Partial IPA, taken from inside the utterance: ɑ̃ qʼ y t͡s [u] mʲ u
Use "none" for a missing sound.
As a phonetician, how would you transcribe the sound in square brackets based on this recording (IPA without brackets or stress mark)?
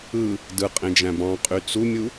u